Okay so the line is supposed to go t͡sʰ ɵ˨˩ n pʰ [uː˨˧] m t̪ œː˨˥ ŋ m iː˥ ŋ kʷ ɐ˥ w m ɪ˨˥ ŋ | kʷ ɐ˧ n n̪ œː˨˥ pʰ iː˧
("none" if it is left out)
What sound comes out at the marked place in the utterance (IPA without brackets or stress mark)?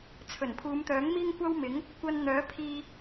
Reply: uː˨˧